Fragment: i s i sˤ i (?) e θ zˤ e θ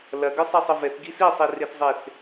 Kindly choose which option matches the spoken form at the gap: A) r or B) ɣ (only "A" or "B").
A